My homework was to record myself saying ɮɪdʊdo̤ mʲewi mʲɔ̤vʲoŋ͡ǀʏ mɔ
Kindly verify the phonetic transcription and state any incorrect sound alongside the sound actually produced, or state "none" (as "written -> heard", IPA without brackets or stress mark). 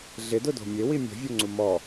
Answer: ʏ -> u